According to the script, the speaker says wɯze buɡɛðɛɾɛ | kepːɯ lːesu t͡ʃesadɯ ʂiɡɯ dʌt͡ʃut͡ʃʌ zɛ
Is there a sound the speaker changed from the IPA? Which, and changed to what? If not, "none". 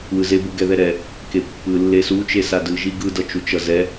ʂ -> ʒ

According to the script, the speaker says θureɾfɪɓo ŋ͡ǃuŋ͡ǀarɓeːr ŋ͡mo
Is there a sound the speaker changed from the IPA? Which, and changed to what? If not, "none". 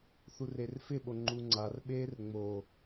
ɾ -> r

